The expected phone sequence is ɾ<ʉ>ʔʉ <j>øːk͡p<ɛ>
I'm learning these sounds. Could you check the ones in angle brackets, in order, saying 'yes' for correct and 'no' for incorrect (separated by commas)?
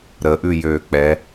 no, yes, yes